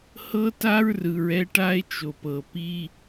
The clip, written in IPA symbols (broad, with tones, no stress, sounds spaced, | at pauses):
h ɤ˦ t a˦ ɹ r ɯ˨ ɹ ɛ˦ ʈ a˦ e̯ t͡ʃ o˨ p ɤ˨ p i˦